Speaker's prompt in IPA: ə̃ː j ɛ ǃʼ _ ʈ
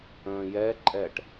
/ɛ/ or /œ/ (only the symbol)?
ɛ